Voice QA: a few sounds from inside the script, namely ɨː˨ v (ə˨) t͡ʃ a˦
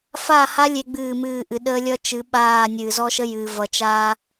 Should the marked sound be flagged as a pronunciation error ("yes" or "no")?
yes